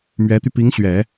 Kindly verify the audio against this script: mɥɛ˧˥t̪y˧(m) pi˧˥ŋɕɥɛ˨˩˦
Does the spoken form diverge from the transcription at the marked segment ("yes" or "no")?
yes